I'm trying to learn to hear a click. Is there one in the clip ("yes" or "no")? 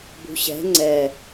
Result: yes